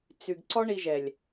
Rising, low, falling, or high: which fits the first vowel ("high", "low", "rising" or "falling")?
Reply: low